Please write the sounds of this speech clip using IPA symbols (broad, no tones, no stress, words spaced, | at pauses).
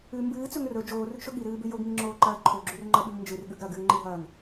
ʉ mbɨːt͡sɵŋ rɵ d͡ʒoːrʉɡʃɵ ɠiɾɨːbʉ joɡŋiŋ͡ǁoːǃɐː ǃʰoɡ͡ǁʉrŋ͡ǃɐɓʉŋ nd͡ʒɨrɠʉɡ ɾɐɡɨːŋ͡ǃiɦɐːŋ